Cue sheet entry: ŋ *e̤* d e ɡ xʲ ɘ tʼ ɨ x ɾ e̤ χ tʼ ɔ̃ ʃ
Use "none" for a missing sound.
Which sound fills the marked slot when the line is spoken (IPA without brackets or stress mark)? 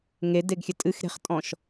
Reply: e